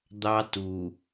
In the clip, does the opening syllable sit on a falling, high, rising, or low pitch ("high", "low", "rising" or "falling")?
high